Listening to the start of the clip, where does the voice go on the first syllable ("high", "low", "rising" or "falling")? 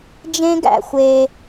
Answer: high